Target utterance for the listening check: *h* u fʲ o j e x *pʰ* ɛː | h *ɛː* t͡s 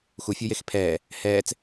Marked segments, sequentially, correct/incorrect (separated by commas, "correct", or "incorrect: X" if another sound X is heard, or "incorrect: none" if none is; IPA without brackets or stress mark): incorrect: x, correct, correct